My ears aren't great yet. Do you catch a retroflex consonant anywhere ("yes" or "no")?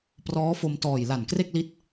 no